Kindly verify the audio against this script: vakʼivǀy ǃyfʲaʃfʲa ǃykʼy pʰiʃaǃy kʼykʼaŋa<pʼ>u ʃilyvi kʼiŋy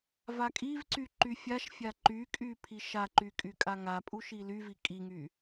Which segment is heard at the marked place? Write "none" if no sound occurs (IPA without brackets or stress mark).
pʼ